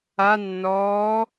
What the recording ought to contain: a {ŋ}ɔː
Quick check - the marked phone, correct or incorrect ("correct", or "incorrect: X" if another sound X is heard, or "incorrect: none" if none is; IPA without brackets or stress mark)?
incorrect: nː